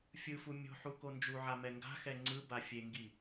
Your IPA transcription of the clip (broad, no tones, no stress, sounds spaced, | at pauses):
fʲ ɯ f u mʲ o̤ ħ u k o n d͡ʒ u ʕ a m ɛ ŋ ɡ a̤ x ɛ ŋ͡ǀ ɯ b a fʲ e ŋ ɡ i